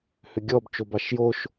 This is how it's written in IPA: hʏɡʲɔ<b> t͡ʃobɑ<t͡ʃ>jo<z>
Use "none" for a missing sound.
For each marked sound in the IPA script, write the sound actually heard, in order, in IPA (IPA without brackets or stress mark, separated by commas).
b, ʃ, ʃ